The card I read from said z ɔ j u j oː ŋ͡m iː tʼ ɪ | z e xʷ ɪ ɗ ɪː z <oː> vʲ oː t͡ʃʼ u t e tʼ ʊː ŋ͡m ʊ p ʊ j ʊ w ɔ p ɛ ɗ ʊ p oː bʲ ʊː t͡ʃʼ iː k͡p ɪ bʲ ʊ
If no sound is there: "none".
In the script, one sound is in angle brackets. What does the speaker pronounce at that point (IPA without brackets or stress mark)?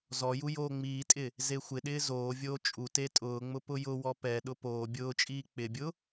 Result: oː